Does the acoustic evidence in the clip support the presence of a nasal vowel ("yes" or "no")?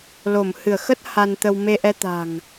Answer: no